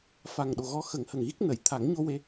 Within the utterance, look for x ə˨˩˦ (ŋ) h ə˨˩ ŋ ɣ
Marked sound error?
no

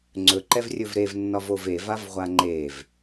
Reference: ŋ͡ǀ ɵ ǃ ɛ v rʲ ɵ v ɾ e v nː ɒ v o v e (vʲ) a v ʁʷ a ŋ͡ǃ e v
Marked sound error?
yes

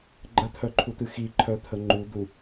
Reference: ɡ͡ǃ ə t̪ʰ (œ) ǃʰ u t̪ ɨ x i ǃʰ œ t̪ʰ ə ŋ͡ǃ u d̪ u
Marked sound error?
no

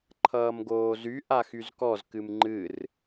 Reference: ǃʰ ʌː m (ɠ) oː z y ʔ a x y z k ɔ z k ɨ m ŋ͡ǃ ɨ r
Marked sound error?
yes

